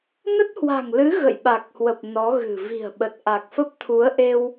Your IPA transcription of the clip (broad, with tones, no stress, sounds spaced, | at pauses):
n ə˦˥ t̚ h w a̤˨˩ ŋ l ɨ˨˦ ɣ ə̰˧˨ j ɓ a˨˩ k̚ h w ə˨˩ p̚ n ɔ˨˦ ɣ ɨ̤˨˩ v i̤˨˩ ə̯ ɓ ə˨˩ t̚ ʔ a˨˩ k̚ f ə˦˥ p̚ t̪ʰ u˨˦ ə̯ ʔ e˧ w